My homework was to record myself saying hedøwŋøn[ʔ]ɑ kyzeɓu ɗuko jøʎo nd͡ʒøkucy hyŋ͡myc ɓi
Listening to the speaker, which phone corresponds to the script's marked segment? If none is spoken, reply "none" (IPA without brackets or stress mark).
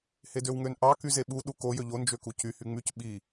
ʔ